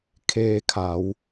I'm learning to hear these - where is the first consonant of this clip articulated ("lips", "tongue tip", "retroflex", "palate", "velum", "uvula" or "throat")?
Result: velum